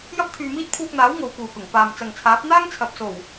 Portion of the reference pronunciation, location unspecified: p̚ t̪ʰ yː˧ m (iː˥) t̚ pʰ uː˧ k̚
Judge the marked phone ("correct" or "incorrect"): correct